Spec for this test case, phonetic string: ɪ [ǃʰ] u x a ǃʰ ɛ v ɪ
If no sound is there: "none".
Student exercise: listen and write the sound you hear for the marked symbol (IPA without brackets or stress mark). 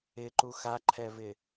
ǃ